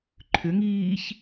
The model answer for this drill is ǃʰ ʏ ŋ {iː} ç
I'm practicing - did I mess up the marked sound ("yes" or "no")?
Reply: no